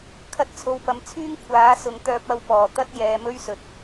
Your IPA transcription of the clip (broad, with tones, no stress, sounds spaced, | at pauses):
kʰ ɐ˧ t̚ t͡sʰ o˨ w p ɐ˨ m t͡sʰ yː˥ ŋ kʷʰ aː˨˥ s ʊ˨ ŋ t̪ œː˧ p̚ ɐ˧ w p ɔː˨˩ t̪ ɐ˥ t̚ j ɛː˨ m ɵ˥ ɥ s ɵ˨˥ t̚